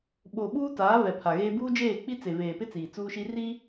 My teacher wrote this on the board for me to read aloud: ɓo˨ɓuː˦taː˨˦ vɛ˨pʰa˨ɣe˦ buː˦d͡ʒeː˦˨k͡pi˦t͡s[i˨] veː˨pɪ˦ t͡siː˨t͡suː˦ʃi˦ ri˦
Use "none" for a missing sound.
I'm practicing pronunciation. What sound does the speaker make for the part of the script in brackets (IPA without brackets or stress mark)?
e˨